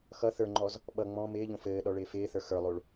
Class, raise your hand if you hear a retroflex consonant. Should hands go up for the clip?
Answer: yes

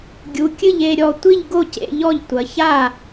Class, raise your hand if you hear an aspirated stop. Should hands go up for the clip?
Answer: no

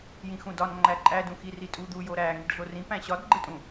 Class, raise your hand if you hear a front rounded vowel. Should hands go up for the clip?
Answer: no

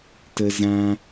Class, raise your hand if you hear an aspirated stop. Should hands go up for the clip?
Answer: no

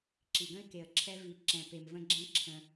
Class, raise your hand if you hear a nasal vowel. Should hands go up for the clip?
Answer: yes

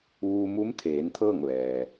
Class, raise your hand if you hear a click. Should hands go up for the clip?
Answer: no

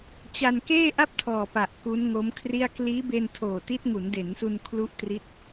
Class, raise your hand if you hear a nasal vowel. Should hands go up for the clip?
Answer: no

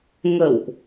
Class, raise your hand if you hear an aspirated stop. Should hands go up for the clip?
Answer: no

